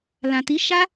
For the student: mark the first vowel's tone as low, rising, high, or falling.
low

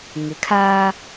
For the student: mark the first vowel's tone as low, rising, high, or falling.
low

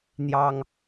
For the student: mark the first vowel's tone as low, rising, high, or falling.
high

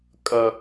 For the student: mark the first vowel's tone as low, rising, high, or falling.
low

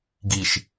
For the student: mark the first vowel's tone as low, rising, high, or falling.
low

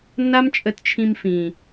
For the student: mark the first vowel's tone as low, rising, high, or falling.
high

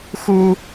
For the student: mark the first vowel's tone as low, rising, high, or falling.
high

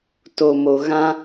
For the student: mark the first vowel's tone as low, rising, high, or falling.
low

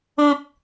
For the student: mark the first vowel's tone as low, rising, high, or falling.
low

